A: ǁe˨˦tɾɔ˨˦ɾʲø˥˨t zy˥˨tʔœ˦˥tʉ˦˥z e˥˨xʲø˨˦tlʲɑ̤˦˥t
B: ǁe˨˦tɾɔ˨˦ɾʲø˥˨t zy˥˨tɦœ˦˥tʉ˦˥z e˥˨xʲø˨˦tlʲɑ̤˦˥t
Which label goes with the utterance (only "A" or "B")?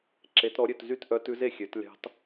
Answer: A